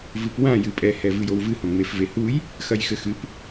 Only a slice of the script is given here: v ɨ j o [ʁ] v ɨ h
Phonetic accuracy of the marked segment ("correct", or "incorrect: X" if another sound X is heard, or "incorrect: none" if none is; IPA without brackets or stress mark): incorrect: w